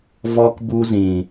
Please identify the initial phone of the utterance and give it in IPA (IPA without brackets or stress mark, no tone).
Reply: v